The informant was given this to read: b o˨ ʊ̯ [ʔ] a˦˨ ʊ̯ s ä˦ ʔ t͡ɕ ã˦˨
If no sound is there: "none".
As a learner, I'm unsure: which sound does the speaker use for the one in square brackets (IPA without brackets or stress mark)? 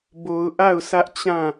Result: ʔ